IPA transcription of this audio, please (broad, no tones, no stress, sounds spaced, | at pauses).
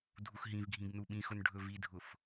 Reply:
dʱ u x ɦ ĩ v ɡʱ ĩ ɡ n u ɓ ĩ x ʊ n ɖʱ ɵ v i dʱ ʊ f